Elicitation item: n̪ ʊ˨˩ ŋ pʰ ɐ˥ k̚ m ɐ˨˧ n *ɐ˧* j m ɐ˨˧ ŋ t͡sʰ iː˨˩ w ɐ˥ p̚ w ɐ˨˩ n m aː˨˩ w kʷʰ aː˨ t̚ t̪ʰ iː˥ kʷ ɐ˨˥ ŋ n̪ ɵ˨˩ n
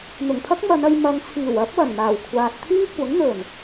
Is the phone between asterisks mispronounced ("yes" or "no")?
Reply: no